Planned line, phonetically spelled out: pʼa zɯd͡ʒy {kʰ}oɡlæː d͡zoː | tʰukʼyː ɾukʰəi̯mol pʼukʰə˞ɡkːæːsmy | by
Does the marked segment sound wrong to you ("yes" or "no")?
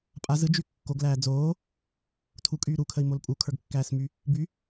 yes